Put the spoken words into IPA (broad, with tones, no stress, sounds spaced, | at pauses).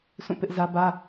s ũ˦˨ p ɪ˦ ʔ z ä˦ b ä˦